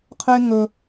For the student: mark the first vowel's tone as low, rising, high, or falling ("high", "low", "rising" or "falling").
high